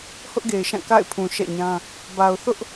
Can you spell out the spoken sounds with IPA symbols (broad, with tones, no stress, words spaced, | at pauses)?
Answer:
hʊ˦ʔɡe˨ɪ̯ʃã˦˨ ka̰˦˨ɪ̯pʰũ˨ʃɛ̰˦˨ɲã˦ | ba˨ʊ̯θʊ˦ʔ